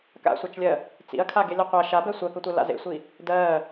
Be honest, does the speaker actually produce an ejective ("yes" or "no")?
no